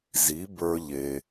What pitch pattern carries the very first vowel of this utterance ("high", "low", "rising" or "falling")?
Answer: rising